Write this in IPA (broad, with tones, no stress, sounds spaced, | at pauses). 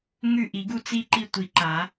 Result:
ŋ ʉ˦˨ ʔ i˨˩˦ ɡ u˦˨ t͡s i˦˨ ǃ i˦˨ tʷ i˨˩˦ ǃ a˨˩˦